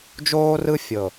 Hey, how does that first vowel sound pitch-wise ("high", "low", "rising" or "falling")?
high